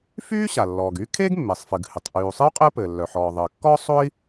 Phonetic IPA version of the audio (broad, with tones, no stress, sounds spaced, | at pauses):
f yː˥ ɕ a˩ lː ɔː˩ ɡ yː˥ kʰ eː˥ ɡ mː eː˩ sˤ f ɨ˩ ɡ h ɨ˩ tˤ ʔ yː˩ u̯ sˤ ɨ˥ u̯ qʼ ɘː˥ p ɘː˩ lː œ˩ ħ ɔː˩ ðˤ ɘː˩ kː ɔ˥ sˤ o˥ i̯